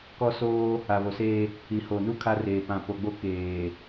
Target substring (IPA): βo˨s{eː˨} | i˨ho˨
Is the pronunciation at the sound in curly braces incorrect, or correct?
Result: incorrect